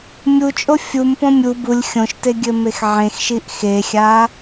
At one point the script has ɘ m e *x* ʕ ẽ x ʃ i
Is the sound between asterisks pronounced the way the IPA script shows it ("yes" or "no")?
yes